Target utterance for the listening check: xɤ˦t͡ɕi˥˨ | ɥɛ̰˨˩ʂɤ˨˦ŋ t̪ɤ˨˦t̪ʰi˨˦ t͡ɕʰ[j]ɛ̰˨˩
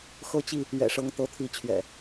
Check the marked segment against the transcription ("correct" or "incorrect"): incorrect